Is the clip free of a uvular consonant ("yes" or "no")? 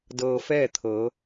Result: yes